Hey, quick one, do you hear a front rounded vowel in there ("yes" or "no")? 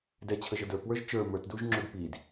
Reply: no